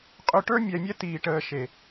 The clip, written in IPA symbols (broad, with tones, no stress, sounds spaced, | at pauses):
qʼ ø˧ ʈ ə˞˦ mʲ ɛ˧ mʲ ɛ˦ t iː˧ ʈ əː˧ ʃ e˨